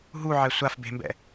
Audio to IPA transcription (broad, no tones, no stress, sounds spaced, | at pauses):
ɦ u ʕ ɛ sʷ a f b e̤ m b ɛ̰